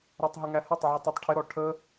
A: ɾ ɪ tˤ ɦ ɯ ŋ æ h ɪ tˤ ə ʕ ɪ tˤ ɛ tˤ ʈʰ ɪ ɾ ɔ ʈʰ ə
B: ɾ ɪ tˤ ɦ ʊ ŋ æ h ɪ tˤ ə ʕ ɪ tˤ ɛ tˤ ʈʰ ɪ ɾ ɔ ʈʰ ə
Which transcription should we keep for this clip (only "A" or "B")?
B